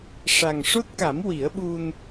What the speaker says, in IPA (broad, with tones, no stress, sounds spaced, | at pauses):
ʂ a˨˩ ŋ ʂ o˦˥ t̚ k a˨˩˦ m w i˨˩˦ ə̯ ɓ u˧ n